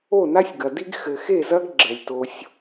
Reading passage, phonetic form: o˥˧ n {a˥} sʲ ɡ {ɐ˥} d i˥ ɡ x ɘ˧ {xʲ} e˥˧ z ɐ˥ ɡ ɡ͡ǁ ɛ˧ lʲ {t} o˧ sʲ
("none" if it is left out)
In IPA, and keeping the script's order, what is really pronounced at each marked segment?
a˥, ɐ˧, x, t

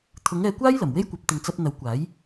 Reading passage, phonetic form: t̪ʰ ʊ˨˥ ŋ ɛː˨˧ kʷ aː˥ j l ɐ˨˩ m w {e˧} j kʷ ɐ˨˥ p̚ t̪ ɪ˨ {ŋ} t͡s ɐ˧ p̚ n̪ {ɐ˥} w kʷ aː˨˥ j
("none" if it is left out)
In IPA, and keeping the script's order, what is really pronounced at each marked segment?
e˥, ŋ, ɐ˨˥

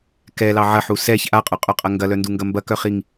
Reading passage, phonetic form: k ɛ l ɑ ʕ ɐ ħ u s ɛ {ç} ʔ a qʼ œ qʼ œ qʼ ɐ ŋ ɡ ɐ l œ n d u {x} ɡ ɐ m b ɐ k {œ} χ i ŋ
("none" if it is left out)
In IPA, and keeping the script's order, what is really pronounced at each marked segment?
ç, ŋ, œ

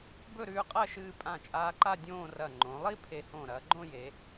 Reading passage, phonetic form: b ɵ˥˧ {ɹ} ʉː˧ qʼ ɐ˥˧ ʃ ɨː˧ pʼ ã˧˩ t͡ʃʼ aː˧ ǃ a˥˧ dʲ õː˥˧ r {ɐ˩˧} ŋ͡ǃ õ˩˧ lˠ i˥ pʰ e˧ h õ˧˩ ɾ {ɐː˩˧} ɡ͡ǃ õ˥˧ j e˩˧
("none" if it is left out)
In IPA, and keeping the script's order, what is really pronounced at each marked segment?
ɾ, ɐ˧˩, ɐː˩˧

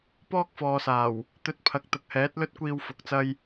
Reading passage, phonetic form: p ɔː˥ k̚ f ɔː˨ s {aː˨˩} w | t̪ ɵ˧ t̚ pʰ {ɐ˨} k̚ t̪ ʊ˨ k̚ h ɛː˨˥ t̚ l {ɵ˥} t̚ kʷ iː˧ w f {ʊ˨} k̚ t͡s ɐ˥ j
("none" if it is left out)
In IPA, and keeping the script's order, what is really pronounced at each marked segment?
aː˨˩, ɐ˨, ɵ˥, ʊ˨˥

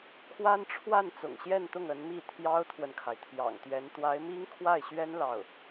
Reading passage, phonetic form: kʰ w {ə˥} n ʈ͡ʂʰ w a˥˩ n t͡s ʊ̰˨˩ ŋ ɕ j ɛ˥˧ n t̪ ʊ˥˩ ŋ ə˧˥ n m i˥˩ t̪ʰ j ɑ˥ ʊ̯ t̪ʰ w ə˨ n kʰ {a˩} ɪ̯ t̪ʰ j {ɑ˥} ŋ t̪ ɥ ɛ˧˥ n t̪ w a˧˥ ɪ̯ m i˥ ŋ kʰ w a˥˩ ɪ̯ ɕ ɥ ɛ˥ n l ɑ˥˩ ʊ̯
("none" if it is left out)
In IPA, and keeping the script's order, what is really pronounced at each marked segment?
a˥, a˩, ɑ̰˨˩

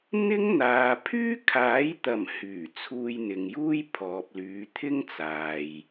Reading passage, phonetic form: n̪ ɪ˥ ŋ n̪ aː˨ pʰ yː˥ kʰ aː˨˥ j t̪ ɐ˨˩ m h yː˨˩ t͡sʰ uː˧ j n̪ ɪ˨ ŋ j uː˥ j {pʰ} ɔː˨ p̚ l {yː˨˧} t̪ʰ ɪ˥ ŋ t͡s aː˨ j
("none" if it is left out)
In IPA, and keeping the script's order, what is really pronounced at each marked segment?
pʰ, yː˨˧

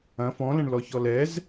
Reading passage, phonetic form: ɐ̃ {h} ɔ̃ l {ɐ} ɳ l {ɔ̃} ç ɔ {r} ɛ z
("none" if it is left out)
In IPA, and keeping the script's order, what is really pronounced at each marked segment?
f, ɐ̃, ɔ, l

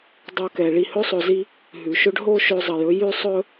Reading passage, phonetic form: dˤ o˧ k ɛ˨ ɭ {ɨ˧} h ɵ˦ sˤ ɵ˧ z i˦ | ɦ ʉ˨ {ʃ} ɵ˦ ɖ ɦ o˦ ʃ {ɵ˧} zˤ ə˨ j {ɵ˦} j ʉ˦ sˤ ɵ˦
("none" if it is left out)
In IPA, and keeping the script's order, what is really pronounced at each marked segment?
i˧, ʃ, ɵ˧, ɵ˧

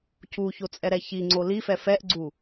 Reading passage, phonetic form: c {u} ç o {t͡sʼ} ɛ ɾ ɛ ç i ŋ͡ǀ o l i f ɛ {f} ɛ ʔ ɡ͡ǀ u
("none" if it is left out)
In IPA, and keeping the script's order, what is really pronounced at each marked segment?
u, t͡sʼ, f

